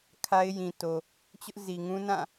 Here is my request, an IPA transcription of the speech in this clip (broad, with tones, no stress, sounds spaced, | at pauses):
kʰ a˦ ɪ̯ j ĩ˨ t o˨ | t͡ɕ ʊ˦ ʔ z i˨ ŋ ũ˦ n ã˦˨